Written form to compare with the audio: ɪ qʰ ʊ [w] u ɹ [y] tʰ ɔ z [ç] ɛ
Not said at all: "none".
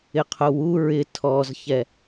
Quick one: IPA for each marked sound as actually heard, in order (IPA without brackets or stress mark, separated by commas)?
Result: w, ɪ, ç